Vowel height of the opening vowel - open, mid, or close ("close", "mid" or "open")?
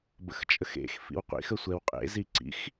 mid